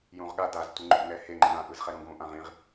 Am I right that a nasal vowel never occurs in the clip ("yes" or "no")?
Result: no